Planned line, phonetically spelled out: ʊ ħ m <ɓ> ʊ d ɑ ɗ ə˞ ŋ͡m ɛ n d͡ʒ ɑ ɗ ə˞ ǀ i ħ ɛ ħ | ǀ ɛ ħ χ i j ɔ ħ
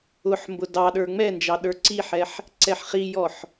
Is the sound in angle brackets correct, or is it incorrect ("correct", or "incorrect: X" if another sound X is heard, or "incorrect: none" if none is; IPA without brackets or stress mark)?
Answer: incorrect: b